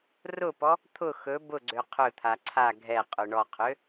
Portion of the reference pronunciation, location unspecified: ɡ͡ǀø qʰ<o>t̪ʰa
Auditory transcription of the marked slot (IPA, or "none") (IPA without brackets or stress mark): ɵ